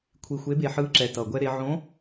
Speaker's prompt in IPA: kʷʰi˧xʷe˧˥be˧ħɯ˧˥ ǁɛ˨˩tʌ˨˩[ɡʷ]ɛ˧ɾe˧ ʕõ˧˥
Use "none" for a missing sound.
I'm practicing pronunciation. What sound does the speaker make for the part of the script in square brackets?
ɡʷ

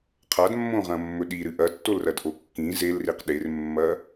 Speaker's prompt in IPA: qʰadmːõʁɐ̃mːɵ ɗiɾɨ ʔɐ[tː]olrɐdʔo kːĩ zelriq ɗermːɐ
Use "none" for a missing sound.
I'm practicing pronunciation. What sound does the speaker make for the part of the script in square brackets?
tː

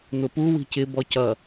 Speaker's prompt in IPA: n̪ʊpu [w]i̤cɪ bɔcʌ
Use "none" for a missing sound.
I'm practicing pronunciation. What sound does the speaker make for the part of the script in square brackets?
w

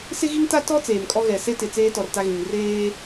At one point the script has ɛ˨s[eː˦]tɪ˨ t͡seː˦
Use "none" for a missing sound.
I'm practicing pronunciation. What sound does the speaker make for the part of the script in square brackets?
e˦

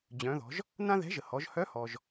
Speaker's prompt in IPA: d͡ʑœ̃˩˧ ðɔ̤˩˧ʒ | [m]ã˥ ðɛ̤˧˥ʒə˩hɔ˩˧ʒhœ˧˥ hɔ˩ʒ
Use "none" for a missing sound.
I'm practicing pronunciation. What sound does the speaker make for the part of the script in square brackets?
n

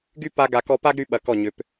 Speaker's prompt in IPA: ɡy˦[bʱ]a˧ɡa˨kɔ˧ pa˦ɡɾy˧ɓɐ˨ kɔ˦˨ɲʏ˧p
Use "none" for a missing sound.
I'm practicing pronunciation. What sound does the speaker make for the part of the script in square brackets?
p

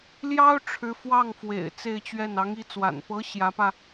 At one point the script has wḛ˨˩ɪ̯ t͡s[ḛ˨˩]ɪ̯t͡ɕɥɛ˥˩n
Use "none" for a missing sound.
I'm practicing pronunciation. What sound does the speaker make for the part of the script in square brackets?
e˥˧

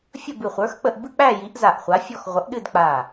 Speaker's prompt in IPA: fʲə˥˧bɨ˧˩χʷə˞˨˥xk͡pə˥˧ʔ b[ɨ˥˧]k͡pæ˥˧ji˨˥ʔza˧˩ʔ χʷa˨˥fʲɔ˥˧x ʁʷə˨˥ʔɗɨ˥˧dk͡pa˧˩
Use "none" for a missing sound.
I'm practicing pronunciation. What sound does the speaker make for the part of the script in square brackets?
ɨ˥˧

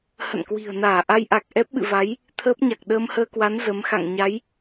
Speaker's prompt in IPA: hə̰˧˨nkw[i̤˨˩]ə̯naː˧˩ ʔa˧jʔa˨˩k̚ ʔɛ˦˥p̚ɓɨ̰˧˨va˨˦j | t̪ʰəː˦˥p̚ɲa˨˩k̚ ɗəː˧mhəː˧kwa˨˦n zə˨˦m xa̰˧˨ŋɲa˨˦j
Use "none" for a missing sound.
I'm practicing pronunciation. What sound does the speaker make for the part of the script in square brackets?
i̤˨˩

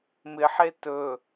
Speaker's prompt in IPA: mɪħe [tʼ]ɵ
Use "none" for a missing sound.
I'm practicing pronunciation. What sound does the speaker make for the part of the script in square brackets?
t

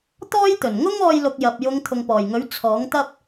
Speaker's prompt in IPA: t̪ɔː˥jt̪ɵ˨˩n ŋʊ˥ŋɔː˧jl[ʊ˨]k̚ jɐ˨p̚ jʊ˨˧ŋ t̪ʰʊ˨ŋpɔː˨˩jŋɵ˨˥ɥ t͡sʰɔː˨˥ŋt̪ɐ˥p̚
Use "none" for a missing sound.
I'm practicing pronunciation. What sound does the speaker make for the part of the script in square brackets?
ʊ˨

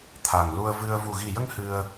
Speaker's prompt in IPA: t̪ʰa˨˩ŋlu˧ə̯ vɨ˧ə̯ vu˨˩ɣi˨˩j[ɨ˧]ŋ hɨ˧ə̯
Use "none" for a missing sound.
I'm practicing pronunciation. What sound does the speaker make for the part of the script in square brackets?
ə˧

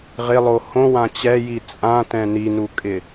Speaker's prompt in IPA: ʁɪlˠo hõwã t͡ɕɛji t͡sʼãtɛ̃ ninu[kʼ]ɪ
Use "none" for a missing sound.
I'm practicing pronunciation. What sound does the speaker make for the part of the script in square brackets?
kʼ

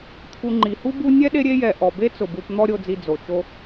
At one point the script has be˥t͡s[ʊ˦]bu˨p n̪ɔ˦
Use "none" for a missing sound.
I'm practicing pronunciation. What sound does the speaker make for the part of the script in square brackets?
ʊ˩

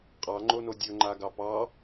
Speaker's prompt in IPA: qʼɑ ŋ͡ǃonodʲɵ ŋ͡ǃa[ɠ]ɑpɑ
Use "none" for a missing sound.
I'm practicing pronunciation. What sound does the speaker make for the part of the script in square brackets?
ɡ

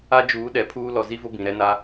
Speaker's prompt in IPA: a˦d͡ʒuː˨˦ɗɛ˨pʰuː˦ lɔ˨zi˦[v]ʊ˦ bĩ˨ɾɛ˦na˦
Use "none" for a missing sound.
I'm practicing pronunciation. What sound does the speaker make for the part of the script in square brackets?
v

